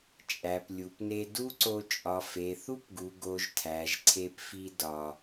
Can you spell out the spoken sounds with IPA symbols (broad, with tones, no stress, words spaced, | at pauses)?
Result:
t͡ʃʼæ˨p lʲu˨pne˧ du˦ǀo˧ t͡ʃʼɒ˨fe˨θu˦pɡu˨ ɡo˧ʒtʰæ˨ʒ ǀʰe˧pfi˧ dɒ˨